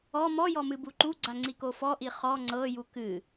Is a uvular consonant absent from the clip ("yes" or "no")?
no